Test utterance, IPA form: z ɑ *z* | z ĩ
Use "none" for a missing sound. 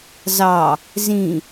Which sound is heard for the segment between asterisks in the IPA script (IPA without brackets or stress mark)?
none